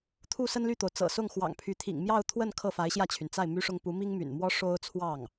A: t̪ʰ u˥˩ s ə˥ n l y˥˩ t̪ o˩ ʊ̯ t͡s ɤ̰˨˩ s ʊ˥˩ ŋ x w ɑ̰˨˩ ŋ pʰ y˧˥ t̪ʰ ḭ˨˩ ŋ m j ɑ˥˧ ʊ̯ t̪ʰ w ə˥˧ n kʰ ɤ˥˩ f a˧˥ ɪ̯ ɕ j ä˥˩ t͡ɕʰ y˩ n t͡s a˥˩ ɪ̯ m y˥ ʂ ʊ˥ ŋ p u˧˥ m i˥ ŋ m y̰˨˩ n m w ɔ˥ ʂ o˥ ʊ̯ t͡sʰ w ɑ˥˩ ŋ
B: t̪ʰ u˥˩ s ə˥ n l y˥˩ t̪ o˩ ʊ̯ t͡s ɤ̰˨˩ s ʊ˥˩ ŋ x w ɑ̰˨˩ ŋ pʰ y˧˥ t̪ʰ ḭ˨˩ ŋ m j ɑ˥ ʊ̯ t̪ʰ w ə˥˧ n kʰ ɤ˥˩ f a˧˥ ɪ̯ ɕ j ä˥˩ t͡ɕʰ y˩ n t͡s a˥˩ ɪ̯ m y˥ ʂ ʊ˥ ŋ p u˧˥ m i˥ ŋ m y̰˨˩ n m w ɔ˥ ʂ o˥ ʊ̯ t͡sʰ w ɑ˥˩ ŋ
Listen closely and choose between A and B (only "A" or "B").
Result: A